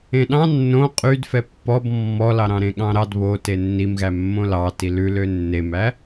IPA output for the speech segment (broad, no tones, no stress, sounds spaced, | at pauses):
ẽ ɗ ɑ̃ nː õ qʼ y d f ɛ pː ɔ b mː ɔ l ɑ ɾ ɑ̃ ɾ ẽ ɠ ɑ̃ ɾ ɑ d β o t e nː i m ɣ æ mː õ l ɑ t i l ʉ l ø nː e m æ